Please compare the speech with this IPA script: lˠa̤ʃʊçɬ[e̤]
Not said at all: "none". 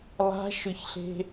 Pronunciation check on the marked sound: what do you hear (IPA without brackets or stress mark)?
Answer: e̤